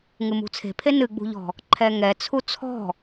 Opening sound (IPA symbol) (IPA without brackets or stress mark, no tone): ŋ